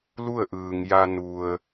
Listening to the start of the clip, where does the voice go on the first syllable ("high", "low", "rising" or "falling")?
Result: falling